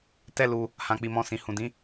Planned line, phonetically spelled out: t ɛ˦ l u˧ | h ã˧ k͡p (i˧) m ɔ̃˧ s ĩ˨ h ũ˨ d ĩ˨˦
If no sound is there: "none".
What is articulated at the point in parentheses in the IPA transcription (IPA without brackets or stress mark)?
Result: i˧